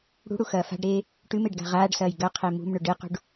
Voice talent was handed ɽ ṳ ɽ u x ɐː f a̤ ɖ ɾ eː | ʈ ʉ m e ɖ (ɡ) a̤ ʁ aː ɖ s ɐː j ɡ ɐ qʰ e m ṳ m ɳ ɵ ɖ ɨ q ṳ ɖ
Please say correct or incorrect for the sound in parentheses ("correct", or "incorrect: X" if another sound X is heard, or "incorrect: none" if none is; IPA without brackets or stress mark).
correct